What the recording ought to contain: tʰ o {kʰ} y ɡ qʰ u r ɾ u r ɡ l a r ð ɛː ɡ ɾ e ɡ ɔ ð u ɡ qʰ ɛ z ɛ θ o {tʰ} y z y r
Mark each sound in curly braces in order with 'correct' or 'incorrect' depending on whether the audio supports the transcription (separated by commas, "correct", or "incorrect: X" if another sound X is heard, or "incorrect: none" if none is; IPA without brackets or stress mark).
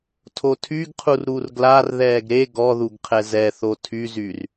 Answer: incorrect: tʰ, correct